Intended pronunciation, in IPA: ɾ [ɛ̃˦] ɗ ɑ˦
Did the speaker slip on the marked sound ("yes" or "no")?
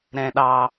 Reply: no